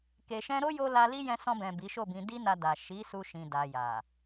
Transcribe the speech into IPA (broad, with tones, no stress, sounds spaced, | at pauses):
k e˨ ʃ ɛ̃˧ ɾ o˦ j o˧ l a˧ l i˦ j ɛ̃˧ s ɔ̃˧ b ɛ̃˨ b i˨˦ ʃ o˦˨ b ĩ˧ d i˦ n a˧ d a˨ ʃ i˨˦ s u˧ ʃ ĩ˨ d a˨ j a˨